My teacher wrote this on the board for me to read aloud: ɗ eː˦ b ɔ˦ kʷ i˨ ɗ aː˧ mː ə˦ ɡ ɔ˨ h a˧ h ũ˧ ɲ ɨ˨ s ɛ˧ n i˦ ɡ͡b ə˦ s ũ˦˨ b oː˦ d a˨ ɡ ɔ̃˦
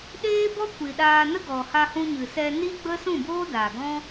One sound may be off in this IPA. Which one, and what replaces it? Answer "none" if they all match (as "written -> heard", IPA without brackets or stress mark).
mː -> n